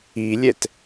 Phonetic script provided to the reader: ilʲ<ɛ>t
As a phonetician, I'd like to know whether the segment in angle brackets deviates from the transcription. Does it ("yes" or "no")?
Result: no